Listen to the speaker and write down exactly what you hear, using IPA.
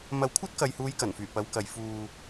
mɐ˧wkʷʰɐ˥t̚ kɐ˨jhuː˨˧j kɐ˨˩nfyː˨˩ pɐ˨˧wkɐ˨j fuː˨

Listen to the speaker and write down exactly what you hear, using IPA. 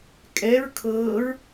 kʼɛɹ kʰɤːɹ

